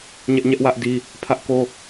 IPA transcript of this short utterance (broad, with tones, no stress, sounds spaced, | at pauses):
ɲ ɛ˦ ʔ ɲ ɛ˦ ʔ w ä˦ ʔ d i˦ | pʰ ä˦ ʔ k o˦